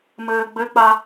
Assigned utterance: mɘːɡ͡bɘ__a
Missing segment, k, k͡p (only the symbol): k͡p